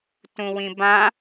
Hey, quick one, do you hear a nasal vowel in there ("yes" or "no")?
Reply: yes